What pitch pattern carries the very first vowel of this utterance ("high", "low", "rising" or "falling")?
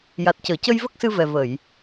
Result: low